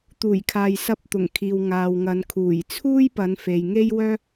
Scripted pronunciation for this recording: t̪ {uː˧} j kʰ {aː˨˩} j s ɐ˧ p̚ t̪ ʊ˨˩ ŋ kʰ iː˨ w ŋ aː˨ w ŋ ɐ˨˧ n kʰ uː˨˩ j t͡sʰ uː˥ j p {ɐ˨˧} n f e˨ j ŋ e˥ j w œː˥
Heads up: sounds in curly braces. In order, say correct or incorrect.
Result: incorrect, incorrect, correct

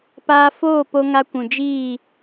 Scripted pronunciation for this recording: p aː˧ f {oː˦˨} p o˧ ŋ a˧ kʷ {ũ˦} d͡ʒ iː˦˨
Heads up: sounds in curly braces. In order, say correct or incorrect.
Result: correct, incorrect

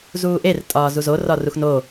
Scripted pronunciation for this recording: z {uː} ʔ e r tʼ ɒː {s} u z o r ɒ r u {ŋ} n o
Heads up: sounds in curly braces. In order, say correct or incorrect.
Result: correct, incorrect, incorrect

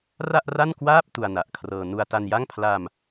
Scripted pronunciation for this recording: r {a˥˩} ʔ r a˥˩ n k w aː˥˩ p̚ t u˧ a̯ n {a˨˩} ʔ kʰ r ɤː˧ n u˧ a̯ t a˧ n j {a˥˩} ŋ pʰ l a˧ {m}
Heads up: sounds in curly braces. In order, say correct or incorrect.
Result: correct, correct, correct, correct

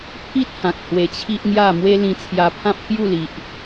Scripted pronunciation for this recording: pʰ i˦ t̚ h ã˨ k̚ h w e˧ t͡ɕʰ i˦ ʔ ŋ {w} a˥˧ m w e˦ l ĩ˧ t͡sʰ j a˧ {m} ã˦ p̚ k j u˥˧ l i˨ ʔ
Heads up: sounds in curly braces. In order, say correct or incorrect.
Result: incorrect, incorrect

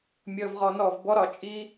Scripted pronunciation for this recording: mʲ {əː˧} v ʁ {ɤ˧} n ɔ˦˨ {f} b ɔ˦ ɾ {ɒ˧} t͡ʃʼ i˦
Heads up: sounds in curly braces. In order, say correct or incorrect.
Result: correct, incorrect, incorrect, correct

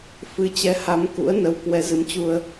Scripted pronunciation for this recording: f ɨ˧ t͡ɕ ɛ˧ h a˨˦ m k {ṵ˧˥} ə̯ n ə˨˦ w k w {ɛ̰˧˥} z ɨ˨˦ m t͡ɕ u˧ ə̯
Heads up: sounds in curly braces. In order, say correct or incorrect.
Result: correct, incorrect

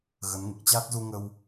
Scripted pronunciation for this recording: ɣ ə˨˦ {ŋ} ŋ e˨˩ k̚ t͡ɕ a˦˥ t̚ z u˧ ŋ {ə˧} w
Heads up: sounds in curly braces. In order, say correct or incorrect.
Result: incorrect, correct

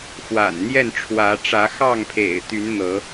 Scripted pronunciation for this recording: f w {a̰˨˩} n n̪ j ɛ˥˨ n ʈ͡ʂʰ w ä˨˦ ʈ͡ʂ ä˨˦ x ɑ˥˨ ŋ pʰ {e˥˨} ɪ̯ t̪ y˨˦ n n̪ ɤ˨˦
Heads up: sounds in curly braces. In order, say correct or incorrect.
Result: correct, incorrect

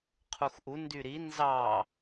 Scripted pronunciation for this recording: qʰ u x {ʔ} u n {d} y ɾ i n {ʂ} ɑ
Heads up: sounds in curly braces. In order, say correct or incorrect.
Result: correct, correct, incorrect

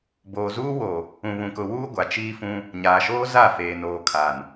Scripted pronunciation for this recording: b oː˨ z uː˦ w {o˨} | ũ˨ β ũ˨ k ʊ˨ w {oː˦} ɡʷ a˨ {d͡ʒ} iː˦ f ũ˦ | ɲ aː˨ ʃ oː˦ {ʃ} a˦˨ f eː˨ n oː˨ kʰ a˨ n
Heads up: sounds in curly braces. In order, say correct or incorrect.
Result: correct, incorrect, incorrect, incorrect

